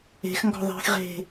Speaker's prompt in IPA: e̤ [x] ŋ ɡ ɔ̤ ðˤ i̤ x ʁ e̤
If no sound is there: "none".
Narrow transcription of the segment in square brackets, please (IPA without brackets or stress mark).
x